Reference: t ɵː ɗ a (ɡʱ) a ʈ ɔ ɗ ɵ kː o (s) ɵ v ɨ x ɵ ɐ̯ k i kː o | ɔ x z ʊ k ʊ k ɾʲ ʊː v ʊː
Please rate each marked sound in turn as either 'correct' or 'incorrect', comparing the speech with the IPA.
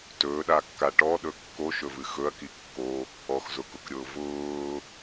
incorrect, incorrect

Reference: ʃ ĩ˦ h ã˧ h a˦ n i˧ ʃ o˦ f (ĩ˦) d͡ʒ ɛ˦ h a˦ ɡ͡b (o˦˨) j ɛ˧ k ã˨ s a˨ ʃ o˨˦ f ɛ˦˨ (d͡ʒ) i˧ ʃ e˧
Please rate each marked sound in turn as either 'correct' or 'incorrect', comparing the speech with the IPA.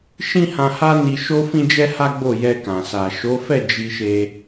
correct, correct, correct

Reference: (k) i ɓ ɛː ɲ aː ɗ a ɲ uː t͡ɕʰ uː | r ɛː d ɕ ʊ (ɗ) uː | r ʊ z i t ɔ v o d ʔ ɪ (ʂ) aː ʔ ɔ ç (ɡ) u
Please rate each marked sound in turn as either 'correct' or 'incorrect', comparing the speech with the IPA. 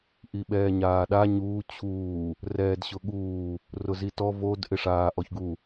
incorrect, incorrect, correct, correct

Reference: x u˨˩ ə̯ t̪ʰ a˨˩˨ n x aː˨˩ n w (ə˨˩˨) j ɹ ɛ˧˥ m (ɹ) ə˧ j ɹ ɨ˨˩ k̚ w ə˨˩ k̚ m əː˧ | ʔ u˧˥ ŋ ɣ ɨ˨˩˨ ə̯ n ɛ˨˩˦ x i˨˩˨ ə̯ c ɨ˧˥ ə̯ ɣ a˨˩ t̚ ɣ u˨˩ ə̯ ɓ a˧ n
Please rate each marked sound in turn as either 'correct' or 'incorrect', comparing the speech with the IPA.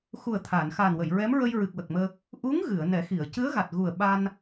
correct, correct

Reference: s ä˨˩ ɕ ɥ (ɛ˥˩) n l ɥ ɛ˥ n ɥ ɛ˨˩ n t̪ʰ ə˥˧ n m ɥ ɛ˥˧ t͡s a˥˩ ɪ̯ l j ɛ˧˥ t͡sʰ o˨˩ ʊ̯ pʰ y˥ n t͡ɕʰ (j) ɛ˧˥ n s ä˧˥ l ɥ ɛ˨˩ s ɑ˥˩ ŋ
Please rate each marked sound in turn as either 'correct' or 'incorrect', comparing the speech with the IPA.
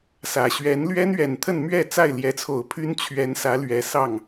incorrect, incorrect

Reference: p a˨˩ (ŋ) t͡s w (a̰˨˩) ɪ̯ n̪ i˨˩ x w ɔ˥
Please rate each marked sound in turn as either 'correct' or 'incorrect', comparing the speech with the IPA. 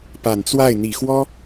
incorrect, incorrect

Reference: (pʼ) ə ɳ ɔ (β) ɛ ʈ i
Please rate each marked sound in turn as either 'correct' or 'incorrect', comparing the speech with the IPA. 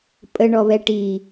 correct, correct

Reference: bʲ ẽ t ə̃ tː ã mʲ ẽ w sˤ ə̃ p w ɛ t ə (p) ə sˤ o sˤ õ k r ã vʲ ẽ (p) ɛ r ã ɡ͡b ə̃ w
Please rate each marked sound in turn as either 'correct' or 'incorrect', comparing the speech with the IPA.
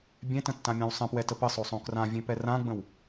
correct, correct

